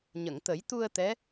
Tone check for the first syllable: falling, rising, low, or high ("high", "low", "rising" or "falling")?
low